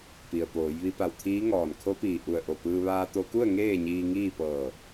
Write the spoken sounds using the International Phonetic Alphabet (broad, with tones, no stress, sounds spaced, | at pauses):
p i˩ ə̯ p oː˩˧ j ʋ i˧ p a˧˩ w t̪ʰ iː˧˥ ŋ ɔː˧˩ n kʰ o˧˥ p iː˧˩ ʔ u˧˩ ə̯ ʔ o˧˩ p ɯː˧ ʋ aː˧ t̪ o˧ k u˥˨ ə̯ ŋ eː˥˨ ɲ iː˧ ŋ iː˥˨ p ɤː˧˩